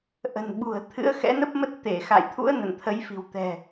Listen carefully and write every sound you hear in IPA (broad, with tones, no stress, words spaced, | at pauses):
ʔə̤˨˩nɓṳ˨˩ə̯t̪ʰɨ̰˧˥ə̯ xɛ̰˧˥nə˦˥p̚mə˦˥t̚ t̪e˧˩xa̰˧˨jt̪ʰṵ˧˥ə̯ nə̰˧˨nt̪ʰə˨˦jfi̤˨˩wt̪ɛ̤˨˩